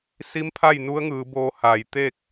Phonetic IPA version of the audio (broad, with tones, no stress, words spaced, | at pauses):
si˧˥mpʰa˥˨j nu˧˥ə̯ŋɯː˩˧boː˧ ha˧˩j t̪eː˥˨k̚